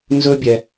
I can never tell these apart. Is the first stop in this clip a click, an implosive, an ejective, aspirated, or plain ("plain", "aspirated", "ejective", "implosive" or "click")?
plain